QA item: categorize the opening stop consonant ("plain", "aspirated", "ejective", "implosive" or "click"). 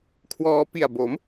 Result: aspirated